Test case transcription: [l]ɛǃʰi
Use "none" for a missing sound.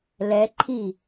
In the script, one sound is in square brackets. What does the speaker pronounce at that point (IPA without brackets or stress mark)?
l